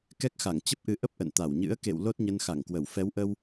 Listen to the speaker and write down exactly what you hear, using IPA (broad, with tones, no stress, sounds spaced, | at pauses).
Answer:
k ɛ˦˥ k̚ x a˧˩ ŋ t͡ɕ ə˦˥ p̚ ʔ ɨ˨˦ ʔ ə˦˥ p̚ ʔ ə̰˧˨ n t̪ a˧˩ w ɲ ɨ̰˧˥ ə̯ k ḛ˧˨ w l o˦˥ t̚ ɲ ə˧ n x a˧˩ ŋ k w ə˧˩ w f ɛ˨˦ w ʔ ə˧ w